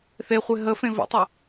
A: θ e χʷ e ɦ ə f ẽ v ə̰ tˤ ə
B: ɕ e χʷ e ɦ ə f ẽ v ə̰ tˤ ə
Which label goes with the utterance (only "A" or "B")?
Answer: A